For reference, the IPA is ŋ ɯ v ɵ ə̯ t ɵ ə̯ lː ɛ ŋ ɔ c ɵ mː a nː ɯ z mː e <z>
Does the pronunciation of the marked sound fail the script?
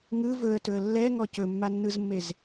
no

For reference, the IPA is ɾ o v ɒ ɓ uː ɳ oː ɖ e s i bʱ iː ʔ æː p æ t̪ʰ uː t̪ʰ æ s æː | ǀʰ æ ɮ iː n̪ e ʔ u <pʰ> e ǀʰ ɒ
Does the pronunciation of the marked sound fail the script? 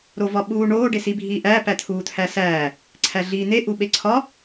yes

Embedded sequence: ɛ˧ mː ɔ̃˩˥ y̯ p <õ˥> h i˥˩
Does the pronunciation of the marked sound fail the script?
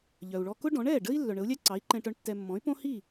no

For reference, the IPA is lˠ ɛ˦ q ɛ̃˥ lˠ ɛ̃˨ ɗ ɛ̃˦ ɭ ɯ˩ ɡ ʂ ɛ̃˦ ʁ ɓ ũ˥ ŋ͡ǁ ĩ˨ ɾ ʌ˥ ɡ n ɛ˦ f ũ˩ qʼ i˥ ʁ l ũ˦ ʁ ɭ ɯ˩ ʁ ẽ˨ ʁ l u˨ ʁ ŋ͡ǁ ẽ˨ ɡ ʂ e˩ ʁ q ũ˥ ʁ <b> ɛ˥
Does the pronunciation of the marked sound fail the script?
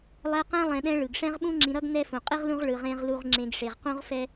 yes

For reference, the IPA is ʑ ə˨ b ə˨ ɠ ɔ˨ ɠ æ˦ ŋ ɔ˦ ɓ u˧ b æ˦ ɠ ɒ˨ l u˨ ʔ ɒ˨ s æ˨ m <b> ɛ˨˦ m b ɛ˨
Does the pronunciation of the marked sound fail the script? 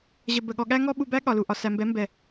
no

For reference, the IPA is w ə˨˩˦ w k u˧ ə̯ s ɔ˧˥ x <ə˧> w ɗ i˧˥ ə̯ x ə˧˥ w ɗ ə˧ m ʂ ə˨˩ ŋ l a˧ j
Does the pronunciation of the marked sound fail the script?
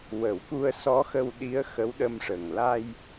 no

